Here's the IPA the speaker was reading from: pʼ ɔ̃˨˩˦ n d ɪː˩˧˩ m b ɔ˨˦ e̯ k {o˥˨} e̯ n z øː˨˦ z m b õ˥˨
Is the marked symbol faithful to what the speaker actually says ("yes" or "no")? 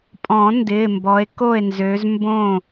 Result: yes